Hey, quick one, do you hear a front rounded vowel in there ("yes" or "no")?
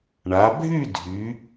yes